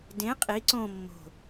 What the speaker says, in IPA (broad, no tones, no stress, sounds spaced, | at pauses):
d ẽ qʼ i ǀ õ mː o̤